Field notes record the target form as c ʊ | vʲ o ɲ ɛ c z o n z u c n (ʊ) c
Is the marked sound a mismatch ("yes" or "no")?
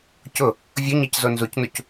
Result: yes